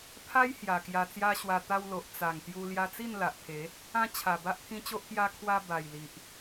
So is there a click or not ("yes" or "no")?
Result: no